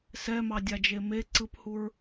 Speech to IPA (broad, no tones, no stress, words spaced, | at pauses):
sɛmɑdʲad͡ʒe me ǀɯphuɹ